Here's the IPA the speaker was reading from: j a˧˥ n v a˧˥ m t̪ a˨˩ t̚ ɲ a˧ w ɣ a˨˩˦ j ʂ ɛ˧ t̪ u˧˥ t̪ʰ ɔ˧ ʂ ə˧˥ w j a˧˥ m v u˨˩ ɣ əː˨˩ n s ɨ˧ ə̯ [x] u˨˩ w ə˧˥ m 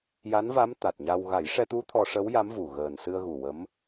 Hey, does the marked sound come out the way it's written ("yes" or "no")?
no